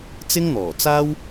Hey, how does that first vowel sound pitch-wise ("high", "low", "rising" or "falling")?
high